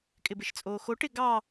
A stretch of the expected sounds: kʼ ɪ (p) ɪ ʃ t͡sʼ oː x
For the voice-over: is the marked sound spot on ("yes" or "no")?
no